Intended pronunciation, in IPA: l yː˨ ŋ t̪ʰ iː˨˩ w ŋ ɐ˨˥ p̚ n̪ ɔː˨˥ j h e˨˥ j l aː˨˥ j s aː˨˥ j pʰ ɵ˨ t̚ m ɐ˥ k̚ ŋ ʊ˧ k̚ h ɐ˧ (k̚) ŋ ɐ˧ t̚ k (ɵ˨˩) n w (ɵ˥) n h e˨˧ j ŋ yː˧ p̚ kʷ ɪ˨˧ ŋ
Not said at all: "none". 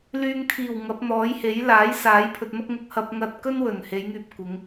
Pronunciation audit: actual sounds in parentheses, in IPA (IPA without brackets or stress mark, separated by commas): p̚, ɵ˥, ɵ˨˩